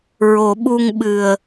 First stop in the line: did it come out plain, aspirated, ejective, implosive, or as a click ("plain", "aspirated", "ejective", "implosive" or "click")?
implosive